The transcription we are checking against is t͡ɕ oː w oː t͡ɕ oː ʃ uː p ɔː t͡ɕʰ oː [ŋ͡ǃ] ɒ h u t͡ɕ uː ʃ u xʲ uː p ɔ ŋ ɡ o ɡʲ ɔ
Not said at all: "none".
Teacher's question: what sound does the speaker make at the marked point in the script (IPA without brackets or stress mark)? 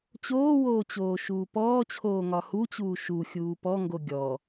ŋ